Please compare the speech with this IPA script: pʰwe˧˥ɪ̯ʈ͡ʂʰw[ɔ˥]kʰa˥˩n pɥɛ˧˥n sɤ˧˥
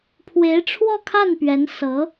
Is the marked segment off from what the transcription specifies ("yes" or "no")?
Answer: yes